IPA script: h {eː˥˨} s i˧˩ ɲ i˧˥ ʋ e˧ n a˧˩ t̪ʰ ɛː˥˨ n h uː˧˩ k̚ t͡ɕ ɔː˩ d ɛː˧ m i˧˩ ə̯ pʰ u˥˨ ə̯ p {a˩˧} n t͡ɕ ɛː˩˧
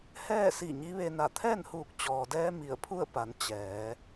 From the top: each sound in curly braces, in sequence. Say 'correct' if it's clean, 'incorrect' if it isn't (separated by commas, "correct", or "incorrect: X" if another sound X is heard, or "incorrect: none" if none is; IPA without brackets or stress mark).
incorrect: ɛː˥˨, correct